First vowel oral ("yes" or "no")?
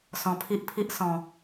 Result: no